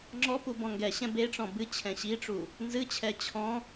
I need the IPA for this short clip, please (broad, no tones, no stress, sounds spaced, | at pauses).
ŋ͡ǁ ɔ p u b ɔ̃ ŋ ɡ ɛ ɕ ɛ̃ b e ʈ͡ʂ ɔ̃ b ɨ t͡ɕʰ ɛ̃ ɕ i ʈ͡ʂ u | n z ɨ t͡ɕʰ ɛ t͡ɕʰ ɔ̃